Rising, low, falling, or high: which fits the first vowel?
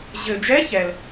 low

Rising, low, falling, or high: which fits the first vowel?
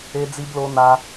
high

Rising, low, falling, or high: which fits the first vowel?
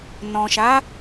low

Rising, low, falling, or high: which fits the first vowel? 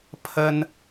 high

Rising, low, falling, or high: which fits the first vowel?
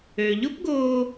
low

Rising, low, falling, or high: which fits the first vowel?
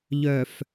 low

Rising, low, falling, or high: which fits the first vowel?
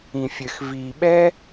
low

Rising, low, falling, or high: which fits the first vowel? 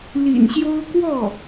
low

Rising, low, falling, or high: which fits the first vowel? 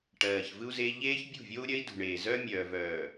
low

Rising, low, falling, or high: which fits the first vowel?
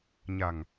low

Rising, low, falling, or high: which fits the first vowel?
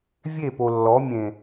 falling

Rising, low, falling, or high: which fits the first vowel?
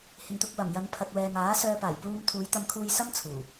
low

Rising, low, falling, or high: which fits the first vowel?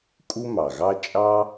high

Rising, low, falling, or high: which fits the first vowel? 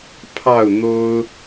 falling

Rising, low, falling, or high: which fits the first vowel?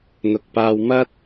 low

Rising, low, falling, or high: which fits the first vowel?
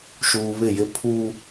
low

